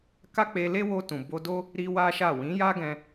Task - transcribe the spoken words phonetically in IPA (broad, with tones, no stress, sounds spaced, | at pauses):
k a˦ k͡p e˧ l e˦ w o˧ t ũ˨ b o˧ d o˦ | ɾ i˦ w a˦ ʃ a˦˨ w ĩ˨˦ j a˦ ɡ ɛ̃˧